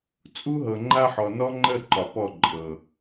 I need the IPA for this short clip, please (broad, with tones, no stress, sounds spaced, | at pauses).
t͡sʼ u˦ ɦ ɤ˨ ŋ͡ǃ a˦ ħ ɔ˨ n ɔ˦ ŋ͡ǃ ə˦˨ ǃ ɒ˨ p ɔ˦˨ ǃʼ ɤ˨